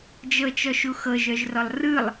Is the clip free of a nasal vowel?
yes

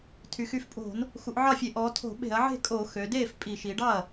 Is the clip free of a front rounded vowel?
no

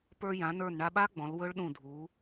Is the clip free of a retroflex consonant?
no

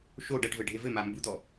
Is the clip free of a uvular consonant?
yes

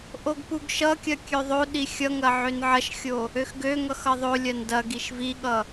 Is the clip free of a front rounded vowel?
no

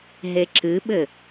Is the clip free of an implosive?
no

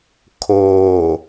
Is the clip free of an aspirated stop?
no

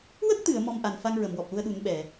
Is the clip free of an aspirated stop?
yes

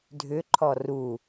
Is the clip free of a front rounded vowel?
no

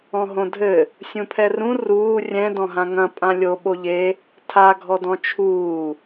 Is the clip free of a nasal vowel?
no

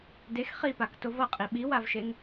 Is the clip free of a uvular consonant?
no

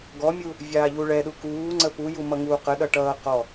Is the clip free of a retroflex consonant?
no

